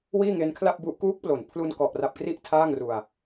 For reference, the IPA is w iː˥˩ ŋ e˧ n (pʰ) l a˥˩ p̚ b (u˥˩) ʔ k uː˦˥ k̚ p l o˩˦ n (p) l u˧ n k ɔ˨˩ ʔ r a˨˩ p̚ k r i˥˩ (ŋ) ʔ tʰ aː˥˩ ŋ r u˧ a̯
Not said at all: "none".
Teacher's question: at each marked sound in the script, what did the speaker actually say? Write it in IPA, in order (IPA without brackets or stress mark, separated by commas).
kʰ, u˦˥, pʰ, none